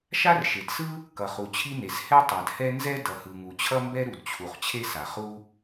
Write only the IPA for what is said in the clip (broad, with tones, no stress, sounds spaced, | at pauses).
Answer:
ʃ a˥ r ʃ e˩ d s ɯ˥ | k ʌ˩ χ u˩ t͡ɕʰ i˥ n e˩ s h ɛ˥ tˤ a˩ d h ɛ˥ n z ɛ˥ d ʌ˩ h ɯ˩ ŋ u˩ t͡ɕʰ ʌ˥ m b ɛ˥ ɾ u˩ d t͡ɕʰ u˩ χ t͡ɕʰ e˥ s a˩ χ u˥